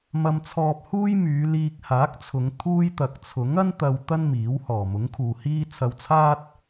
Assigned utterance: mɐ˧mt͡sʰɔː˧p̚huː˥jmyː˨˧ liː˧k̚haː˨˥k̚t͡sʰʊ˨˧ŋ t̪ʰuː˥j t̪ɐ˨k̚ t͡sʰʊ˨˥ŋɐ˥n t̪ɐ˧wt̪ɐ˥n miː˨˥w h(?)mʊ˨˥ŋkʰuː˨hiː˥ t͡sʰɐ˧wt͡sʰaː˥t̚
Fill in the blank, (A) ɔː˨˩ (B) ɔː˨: A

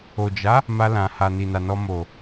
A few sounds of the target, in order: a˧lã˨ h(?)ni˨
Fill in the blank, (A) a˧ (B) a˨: B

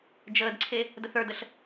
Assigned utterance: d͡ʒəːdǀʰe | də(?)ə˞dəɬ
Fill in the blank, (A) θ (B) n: A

